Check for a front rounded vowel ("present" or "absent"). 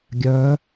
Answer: present